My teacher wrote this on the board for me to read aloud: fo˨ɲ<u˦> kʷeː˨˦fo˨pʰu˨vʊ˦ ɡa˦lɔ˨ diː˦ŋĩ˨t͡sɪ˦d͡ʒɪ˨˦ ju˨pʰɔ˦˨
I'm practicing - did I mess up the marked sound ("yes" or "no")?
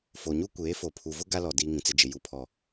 no